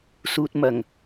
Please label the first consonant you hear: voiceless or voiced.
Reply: voiceless